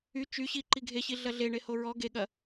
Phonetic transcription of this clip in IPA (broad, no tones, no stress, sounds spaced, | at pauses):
y t͡ʃ y ɕ i ǃ i ɡʱ e ɕ i ɮ ɐ ɮ e ɳ e h o ɹ ɔ ɡ e ɠ ɐ